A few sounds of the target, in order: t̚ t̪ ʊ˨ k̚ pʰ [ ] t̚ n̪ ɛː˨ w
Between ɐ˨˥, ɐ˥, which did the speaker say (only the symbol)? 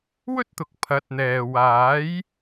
ɐ˨˥